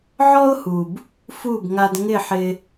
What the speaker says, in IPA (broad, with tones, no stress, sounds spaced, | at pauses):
ʕ ɔ˥ ʊ̯ h u˩ b | f u˥˩ b ŋ a˧ d ŋ ɪ˥˩ ħ ɪ˧